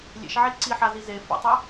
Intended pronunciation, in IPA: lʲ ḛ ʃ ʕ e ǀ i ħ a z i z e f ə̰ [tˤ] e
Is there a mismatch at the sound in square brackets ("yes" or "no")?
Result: no